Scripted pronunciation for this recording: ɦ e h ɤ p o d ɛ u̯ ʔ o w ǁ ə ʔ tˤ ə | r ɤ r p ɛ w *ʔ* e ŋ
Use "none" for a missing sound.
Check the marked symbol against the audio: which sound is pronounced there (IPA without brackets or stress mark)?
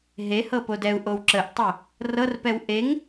ʔ